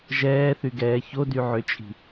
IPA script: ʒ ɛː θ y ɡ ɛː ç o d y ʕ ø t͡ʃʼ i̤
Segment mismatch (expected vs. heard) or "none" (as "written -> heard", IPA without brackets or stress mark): none